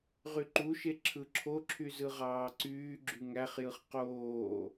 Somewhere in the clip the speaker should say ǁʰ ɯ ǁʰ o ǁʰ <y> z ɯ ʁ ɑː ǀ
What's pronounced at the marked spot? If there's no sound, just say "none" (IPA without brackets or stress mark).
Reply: y